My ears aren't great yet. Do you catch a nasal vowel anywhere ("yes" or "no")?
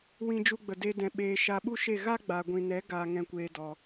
yes